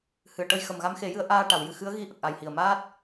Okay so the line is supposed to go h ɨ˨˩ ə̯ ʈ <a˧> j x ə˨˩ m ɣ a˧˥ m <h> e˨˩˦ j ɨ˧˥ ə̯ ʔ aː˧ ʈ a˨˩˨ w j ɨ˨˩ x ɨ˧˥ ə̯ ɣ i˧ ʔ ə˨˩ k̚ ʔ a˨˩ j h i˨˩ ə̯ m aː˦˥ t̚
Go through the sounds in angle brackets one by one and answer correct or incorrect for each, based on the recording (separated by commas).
incorrect, incorrect